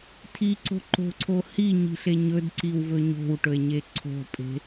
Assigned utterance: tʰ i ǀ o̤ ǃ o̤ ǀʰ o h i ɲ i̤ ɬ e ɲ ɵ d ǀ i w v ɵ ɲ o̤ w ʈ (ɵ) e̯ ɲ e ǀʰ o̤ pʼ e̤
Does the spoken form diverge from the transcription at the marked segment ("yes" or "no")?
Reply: no